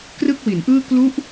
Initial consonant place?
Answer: velar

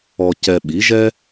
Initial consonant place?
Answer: palatal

